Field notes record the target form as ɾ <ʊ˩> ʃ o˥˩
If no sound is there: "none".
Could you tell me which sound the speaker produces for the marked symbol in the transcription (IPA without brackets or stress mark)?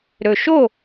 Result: ɵ˩